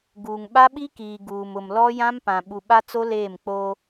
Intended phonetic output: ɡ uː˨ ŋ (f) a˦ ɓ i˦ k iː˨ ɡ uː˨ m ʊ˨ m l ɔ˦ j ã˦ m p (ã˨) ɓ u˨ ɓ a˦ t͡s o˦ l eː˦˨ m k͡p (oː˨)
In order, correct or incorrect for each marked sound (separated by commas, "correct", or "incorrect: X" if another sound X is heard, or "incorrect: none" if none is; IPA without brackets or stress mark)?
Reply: incorrect: ɓ, correct, incorrect: oː˦